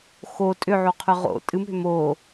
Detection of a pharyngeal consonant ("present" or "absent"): present